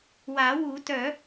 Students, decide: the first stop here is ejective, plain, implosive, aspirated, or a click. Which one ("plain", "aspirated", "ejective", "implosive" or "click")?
plain